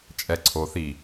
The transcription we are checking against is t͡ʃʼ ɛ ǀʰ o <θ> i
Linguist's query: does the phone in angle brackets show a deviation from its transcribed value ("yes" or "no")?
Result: no